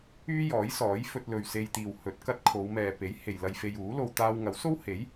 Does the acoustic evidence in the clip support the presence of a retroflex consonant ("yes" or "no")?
no